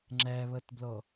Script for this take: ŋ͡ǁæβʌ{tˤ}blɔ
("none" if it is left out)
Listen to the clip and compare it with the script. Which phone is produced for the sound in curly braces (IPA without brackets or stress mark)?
t